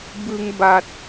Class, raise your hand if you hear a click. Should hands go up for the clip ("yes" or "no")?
no